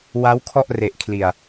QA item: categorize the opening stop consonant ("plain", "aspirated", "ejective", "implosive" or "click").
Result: aspirated